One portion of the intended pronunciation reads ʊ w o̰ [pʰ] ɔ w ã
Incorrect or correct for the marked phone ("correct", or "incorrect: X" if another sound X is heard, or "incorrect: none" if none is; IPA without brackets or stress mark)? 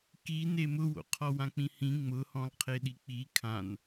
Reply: incorrect: qʰ